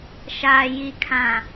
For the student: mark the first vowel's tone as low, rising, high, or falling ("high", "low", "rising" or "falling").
low